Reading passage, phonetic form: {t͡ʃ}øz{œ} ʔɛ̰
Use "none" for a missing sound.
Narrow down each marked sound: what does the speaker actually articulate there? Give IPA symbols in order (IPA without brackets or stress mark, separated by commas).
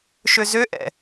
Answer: ʃ, ø